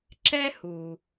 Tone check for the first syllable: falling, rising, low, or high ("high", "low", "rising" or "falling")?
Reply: high